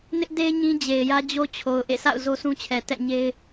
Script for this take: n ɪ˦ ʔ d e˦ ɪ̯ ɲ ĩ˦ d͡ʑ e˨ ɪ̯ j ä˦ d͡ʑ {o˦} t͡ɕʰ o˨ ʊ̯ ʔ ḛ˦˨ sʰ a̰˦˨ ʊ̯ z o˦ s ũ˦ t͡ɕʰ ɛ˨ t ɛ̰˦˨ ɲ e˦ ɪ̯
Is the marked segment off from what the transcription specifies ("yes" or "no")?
no